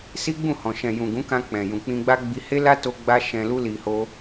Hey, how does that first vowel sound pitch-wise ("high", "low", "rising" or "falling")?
high